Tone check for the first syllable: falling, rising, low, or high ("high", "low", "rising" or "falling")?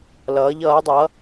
rising